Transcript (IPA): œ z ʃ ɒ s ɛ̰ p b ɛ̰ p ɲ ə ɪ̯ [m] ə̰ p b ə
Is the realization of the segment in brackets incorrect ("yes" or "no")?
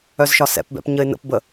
yes